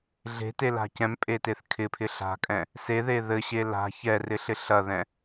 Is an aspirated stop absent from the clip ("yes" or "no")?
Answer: no